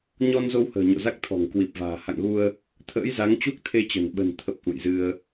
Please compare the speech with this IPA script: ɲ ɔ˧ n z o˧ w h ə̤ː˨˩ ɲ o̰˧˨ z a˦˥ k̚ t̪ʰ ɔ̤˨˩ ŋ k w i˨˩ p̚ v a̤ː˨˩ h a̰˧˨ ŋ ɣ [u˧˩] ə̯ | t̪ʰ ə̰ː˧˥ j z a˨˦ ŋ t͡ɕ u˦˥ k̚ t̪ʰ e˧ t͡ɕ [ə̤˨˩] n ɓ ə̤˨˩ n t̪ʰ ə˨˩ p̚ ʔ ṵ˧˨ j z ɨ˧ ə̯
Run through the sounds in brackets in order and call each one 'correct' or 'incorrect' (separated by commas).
incorrect, correct